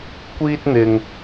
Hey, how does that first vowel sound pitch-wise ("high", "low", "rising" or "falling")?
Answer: high